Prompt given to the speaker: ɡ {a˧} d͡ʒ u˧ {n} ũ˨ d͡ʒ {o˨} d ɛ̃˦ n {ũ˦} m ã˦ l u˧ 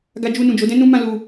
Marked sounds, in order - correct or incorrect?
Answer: correct, correct, incorrect: o˨˦, correct

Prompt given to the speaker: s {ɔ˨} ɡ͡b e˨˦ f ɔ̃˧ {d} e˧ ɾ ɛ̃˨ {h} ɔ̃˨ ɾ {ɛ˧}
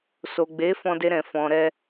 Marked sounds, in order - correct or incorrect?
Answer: incorrect: o˨, correct, incorrect: f, correct

